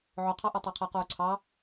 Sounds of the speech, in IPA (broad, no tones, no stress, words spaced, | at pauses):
ʕʊqʰɑʔɐ tˤaqʰəːqʊːǀʰɑ